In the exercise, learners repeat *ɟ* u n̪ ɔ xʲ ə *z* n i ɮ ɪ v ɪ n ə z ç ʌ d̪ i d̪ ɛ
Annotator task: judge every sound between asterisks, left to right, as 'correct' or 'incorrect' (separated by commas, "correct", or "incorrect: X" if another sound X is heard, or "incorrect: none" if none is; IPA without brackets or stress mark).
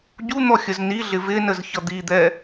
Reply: correct, correct